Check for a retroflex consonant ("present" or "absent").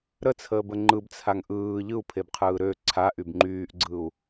absent